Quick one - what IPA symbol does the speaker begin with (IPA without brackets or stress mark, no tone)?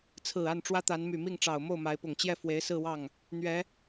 t͡sʰ